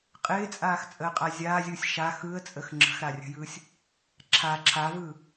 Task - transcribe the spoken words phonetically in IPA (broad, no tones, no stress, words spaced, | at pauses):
qʼɪːt͡sʼaːxt͡sʼəːqʼa zʲaːzʲɯːsʲ ʃa xɯə̯t͡sʼəx ŋ͡ǁə̤xɾarʲə̤jɯːsʲ | ǁʰa ǁʰavɯː